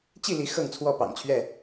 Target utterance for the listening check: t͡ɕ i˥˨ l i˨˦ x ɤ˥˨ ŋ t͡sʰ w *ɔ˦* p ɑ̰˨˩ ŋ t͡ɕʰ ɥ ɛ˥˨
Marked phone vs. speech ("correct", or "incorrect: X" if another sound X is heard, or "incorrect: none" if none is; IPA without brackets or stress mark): incorrect: ɔ˥˨